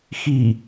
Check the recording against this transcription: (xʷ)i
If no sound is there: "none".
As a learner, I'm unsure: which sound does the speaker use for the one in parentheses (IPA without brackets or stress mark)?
x